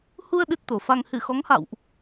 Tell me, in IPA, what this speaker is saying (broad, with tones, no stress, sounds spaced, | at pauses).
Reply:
h u˧ ə̯ ɗ ɨ˦˥ t̚ t̪ o˨˩ f a˧ ŋ h ɨ˧˩ x ɔ˨˦ ŋ h a̰˧˨ w ʔ